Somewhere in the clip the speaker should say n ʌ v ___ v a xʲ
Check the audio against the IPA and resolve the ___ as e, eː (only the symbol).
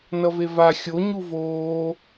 e